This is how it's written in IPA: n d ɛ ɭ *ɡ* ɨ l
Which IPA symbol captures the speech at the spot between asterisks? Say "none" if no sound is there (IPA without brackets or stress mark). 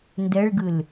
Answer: ɡ